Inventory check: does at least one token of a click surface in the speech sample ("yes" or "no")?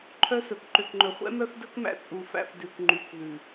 yes